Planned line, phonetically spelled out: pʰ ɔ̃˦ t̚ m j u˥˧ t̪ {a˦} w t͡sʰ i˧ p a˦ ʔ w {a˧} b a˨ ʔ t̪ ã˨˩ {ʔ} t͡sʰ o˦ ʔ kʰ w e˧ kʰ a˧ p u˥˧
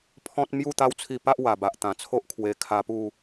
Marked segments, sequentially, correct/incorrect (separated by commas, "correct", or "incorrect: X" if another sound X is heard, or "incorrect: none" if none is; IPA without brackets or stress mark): correct, incorrect: a˨˩, incorrect: none